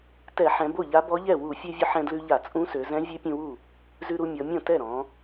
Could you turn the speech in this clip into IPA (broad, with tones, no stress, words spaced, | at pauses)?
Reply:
tɛ˧˩˧ħɛ̃˩˧ bo˥˩ʎa˧˥bɔ˧˥ʎɛ˥˩ wu˧˩˧fʲø˧vʲʊ˧ ħɛ̃˧dlʉ˧ʎa˧˩˧ t͡sʼũ˧˥sø˩˧zɛ̃˧˥vʲʉ˧˥ pʲũ˧wu˥˩ | zʉ˧ɾu˧ mʲɔ˩˧mʲɔ̃˥˩ tɛ˥˩ɾɔ̃˩˧